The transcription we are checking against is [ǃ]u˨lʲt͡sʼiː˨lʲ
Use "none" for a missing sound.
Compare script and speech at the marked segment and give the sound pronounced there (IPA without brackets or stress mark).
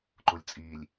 ǃ